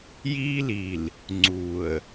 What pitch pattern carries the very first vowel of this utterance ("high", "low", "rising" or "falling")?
high